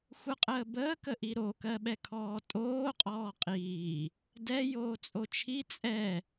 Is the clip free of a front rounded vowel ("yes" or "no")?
yes